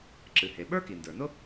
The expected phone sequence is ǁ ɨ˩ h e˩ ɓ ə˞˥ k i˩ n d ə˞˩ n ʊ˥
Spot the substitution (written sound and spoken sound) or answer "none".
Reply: none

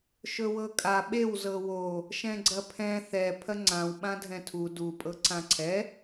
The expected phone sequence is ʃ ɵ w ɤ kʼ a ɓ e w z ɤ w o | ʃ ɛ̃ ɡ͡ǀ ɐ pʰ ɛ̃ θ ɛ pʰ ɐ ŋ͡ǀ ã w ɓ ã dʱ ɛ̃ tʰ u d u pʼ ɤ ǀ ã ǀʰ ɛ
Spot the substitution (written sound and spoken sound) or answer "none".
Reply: none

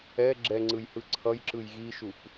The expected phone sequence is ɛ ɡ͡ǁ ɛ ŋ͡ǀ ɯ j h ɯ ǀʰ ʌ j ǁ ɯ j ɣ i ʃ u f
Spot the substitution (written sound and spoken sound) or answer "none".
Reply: none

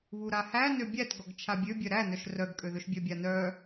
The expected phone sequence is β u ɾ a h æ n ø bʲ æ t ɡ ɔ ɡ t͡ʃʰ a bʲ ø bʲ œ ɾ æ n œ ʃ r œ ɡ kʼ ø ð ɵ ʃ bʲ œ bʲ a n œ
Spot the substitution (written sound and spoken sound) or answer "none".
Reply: none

